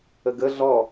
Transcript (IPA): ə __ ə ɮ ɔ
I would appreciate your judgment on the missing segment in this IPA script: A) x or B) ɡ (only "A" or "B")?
B